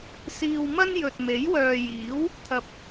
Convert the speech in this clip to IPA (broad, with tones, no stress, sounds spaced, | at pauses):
s iː˧ w m ɐ˥ n j ɵ˨ t̚ m e˨˥ j w œː˨ j iː˨˥ w | t̪ʰ ɐ˨ p̚